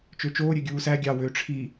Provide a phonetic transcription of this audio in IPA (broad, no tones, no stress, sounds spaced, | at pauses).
t͡ʃ ø t͡ʃ oː ɾʲ ø ɡʲ uː s æ ɡʲ ɑ w ø ʈ͡ʂʰ i